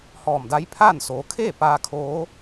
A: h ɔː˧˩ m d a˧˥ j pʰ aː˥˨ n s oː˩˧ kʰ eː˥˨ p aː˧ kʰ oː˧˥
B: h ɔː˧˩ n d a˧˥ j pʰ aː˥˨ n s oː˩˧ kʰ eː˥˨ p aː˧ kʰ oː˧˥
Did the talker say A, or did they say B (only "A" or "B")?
A